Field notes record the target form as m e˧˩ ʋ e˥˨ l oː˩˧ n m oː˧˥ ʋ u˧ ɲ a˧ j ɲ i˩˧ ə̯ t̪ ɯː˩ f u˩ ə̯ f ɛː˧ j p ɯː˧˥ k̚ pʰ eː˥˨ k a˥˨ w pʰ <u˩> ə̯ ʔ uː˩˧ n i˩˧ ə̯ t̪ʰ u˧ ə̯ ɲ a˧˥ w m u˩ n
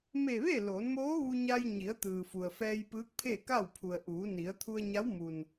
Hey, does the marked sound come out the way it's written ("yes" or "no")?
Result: yes